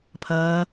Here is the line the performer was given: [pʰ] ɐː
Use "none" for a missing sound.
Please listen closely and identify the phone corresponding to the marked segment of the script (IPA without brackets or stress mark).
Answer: pʰ